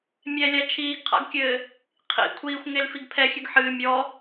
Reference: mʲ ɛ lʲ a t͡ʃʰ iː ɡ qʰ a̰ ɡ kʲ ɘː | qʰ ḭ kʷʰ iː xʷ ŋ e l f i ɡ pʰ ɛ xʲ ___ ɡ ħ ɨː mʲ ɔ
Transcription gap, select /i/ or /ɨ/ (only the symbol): ɨ